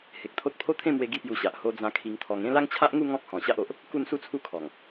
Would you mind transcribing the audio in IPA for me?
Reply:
h e˨ k̚ t̪ʰ o˦ t̚ pʰ o˦ t̪ʰ ẽ˥˧ m w e˧ ɡ i˥˧ p j u˧ ɕ a˨ ʔ h o˧ d͡z ã˧ kʰ i˧ ŋ t̪ʰ ɔ˧ ŋ ẽ˥˧ l a˦ ŋ t͡ɕʰ a˦ ʔ ŋ u˥˧ ŋ ɔ̃˦ k̚ h ɔ̃˨˩ ɕ a˦ ʔ o˨ ʔ | k u˥˧ n s u˥˧ t͡sʰ u˦ kʰ ɔ˨˩ ŋ

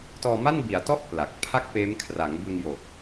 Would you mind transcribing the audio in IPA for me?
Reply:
t ɔː˧ m a˥˩ n b i˩˦ a̯ t ɔ˥˩ ʔ p l a˨˩ k̚ pʰ a˥˩ k̚ p eː˦˥ m kʰ r a˩˦ ŋ b ɯ˧ ŋ j o˨˩ k̚

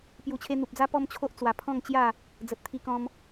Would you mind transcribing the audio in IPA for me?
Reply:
p j u˨˩ t͡ɕʰ e˧ n̪ u˨ p̚ d͡z a˦ p ɔ˦ m t͡ɕʰ o˦ ʔ t͡s w a˨˩ pʰ ɔ̃˥˧ ŋ t͡ɕ j a˥˧ | d͡z ə˨ t̚ t̪ʰ i˧ k ɔ̃˧ m

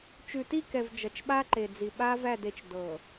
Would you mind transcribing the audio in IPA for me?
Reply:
t͡ʃ ʉ˨ t i˦˨ k ɛ˨ v d͡ʒ ʌ˨ t͡ʃ ɓ a˦ ǃ e˨ d͡z i˨ ɓ a˦ v æ˦˨ d e˨ t͡ʃ d ɤ˨

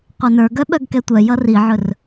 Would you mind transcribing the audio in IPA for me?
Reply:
qʷ ə˞ n ə˞ ɡ œ ɓ œ ɡ k ɛ tʷ œ j ʌ r i ʕ ɵ r

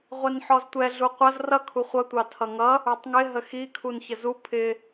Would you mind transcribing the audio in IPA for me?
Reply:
ʁʷ ɛ n ħ ɔ z tʷ ɛ ɮ u qʷ ʌ z r ʌ kʰ u χʷ ʌ tʷ ɑ tʰ ʌ ŋ ʌ | ə˞ tˤ ŋ ɪ ɦ ə x i kʰ u n ç ə z u pʰ ɪ

